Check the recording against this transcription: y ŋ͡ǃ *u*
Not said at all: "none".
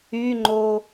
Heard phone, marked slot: o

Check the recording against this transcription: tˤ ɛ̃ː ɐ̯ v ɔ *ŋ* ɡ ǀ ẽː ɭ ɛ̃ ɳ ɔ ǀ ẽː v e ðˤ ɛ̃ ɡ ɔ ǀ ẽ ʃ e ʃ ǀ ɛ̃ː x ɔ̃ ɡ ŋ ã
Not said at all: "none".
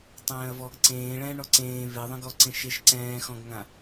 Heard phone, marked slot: none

